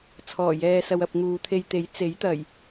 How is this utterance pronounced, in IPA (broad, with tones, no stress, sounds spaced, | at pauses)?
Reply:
t͡sʰ ɔː˨˩ j ɛː˨ s ɐ˨ w ɐ˨ p̚ ŋ uː˨ t̪ʰ e˧ j t̪ e˨˥ j t͡s e˨˥ j t̪ ɐ˨˩ j